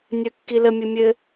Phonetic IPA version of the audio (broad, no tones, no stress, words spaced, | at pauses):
nʲœkːiləmʲɘ mʲɘ